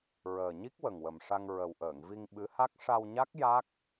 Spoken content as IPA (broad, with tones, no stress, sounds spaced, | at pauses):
ɹ əː˨˩ ɲ i˦˥ k̚ w ə˨˩ ŋ w ə˨˩ m ʂ a˧ ŋ ɹ ə˨˩ w ʔ əː˨˩˨ ŋ v i˧ ŋ ɓ ɨ˧˥ h a˦˥ k̚ ʂ a˧ w ɲ a˦˥ k̚ j a˦˥ k̚